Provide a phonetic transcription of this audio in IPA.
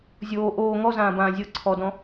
zʲ oː ʔ oː ŋ ɔ z ãː b ãː zʲ ɤ ǀʰ ɔ d ɔ̃

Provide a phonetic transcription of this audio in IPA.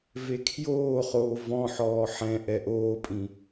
v e kʰ j oː χ oː v ɔ̃ ħ ɔː ħ ɛ̃ ʔ ɛ ʔ oː pʼ ĩ

